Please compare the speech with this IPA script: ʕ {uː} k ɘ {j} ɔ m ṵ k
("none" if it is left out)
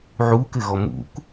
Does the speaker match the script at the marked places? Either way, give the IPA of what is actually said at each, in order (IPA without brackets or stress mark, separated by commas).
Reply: uː, ɣ